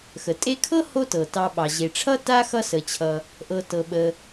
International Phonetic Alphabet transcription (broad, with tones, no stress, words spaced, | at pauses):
xə˩tʼe˦kʰɤ˥ ho˥tɤ˩ tɑ˨ ɓɑ˩ʑe˩ʈ͡ʂʰʌ˥ ta˥xʌ˦sə˩t͡ɕʰʌ˩ | ʔɤ˨tɤ˩ɓə˩